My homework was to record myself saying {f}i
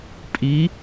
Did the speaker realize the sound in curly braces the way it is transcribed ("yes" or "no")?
no